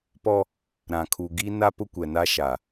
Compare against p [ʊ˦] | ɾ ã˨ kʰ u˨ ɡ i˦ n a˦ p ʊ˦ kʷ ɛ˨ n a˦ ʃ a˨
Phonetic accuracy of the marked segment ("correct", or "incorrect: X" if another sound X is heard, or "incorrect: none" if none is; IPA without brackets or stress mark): incorrect: ɔ˦